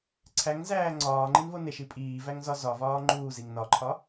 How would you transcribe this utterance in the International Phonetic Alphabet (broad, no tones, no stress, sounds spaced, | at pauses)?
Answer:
ǀʰ æ ŋ z æː ŋ͡ǀ ɒː ŋ͡ǃ i n v o n e ʃ i pʼ iː v æ ŋ z ɒ z ɒ v ɒː ŋ͡ǃ uː z i ŋ n ɒ ǃʰ ɒ